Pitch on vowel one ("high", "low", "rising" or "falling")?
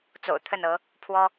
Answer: low